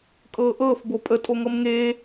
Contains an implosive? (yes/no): no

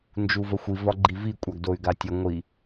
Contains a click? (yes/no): yes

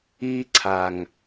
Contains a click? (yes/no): yes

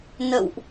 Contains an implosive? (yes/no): no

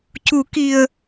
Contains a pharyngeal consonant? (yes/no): no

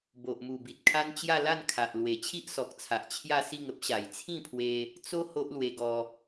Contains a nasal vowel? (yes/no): yes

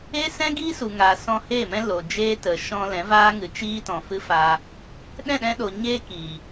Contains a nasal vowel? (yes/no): yes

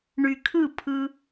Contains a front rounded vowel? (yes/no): yes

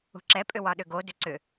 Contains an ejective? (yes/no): yes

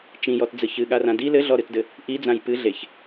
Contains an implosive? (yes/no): yes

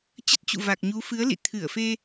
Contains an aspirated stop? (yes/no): yes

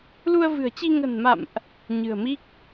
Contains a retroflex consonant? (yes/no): no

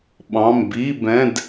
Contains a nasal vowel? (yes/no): yes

